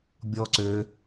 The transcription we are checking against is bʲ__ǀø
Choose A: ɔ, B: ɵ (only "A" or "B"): A